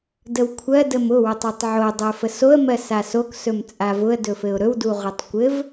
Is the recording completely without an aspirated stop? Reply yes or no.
no